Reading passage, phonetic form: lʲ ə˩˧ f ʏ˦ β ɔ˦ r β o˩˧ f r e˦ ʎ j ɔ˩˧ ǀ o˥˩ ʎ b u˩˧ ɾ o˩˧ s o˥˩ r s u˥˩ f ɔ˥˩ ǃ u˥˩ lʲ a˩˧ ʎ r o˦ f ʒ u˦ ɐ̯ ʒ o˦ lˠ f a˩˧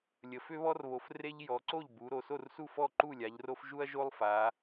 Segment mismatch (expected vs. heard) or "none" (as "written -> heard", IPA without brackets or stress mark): none